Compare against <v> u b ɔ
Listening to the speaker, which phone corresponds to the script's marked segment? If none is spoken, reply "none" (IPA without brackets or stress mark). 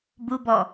b